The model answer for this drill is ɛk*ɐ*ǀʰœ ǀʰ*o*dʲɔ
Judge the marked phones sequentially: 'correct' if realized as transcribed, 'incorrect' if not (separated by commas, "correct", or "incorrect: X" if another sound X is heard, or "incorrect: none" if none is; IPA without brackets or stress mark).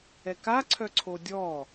incorrect: a, correct